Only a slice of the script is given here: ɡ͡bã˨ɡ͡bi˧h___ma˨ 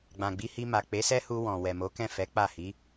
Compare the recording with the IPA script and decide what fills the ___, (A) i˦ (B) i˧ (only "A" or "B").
B